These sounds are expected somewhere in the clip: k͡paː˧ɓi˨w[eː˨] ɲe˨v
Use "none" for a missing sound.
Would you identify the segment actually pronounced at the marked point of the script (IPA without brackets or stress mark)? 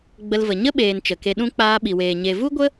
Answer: eː˨